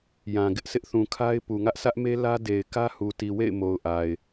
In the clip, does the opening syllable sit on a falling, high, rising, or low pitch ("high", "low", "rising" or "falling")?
low